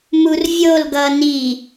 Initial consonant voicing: voiced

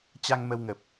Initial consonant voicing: voiceless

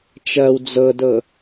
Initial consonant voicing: voiceless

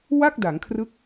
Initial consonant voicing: voiced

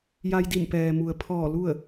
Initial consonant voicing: voiced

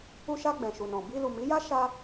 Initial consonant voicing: voiceless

